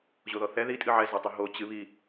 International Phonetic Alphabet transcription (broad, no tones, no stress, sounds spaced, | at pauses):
ʑ o ð ɔ θ ɛ ð i tʼ ɨ ʕ ɛ z o tˤ i ɦ o t͡ɕ ɨ β i